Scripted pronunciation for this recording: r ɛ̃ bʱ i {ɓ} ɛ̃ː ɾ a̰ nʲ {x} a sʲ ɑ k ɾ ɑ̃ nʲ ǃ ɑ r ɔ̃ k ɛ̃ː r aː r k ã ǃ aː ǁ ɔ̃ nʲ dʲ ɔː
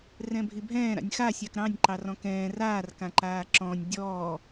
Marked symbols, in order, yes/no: no, yes

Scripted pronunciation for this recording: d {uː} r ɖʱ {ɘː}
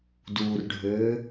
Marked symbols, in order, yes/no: yes, yes

